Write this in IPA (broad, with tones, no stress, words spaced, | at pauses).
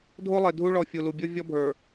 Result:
dʱo˦lˠe˨dʱu˦ ɭɔ˨ fʲu˨lu˨ bʲo˦ vʲɔ˦bʱə˞˨